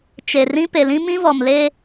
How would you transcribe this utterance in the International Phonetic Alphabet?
t͡ʃe˨ rĩ˦ pe˨lĩ˦ mĩ˦vɔ˨m le˦

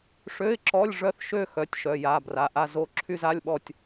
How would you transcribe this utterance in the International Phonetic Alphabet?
ʂø˧˥˧ɪ̯ǁɔ˧˥˧lʲ ʐœ˥˧θʃø˥˧ xœ˧˥˧tʲʃœ˧˥˧ja˧˥˧bra˧˥˧ ʔa˥˧zo˥˧ ǁʰy˥˧za˧˥˧lʲɓɔ˥˧tʲ

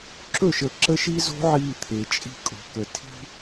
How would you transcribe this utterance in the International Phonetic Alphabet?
ǁɵ˦˨ʃə˨ ǁə˦ʃi˦zo̤˦ ʕiː˦˨t̪ʰe˨t͡ʃʼi̤˦ kʼo̤˨kə˨ tʰi̤˦

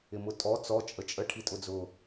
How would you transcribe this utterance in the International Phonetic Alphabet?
ɪmʊtʼɔ t͡sɔ t͡ʃʼət͡ʃʼə ʈʰitʼʊd͡zʊ

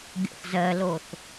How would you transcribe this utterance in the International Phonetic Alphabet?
ɡʲo̰θzɜloθ

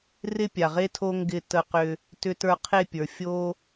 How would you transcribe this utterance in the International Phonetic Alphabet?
rɪ˦pʲa˨ʁe˦tʰo˦ ŋɡɪ˦˨ tə˧qʏ˧ | tʏ˧tə˞˧qʰe˦˨pʲə˞˨ fʲo˦

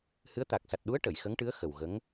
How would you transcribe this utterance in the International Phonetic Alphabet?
hɨ˧˥ə̯t̪a˨˩k̚ sa˨˩t̚ɗu˧˥ə̯ ʈə˨˩˨jxə˧˥ŋʈɨ˧˥ə̯ xə˨˩wɣə˧˥ŋ

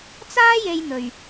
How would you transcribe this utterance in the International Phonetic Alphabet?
t͡saː˥je˧jn̪ɵ˨ɥ

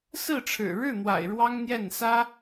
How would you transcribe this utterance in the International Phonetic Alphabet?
sɹ̩˥˩ʈ͡ʂʰɻ̩˨˩ ɻɻ̩˥˩n̪wa̰˨˩ɪ̯ ɻwɑ˥ŋn̪jɛ˥˩n sä˥

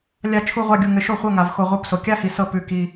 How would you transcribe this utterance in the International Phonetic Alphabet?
lʲa˦˨ t͡ʃʰu˦˨ʁʷa˦˨ɡʲu˨ ŋɘ˨ʃo˦˨ χʷɤ˧˥˧ŋa˨v xo˨ ʁʷɤ˧˥˧pso˨ kʲa˧˥˧hi˨ sɤ˦˨ pʉ˦˨ki˧˥˧

